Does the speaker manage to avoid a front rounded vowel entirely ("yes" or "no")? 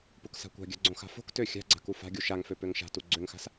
no